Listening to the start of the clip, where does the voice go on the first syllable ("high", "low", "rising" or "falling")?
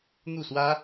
falling